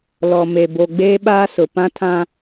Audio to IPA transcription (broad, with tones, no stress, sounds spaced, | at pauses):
l ɔ˨ m e˨ b o˨ ɡ͡b eː˦ ɓ aː˦ s ʊ˨ p ã˦ tʰ ã˦